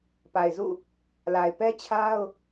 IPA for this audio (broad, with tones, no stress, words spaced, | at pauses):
pa˨ɪ̯zṵ˦˨ | la˨ɪ̯pɛ˦t͡ɕʰa˦ʊ̯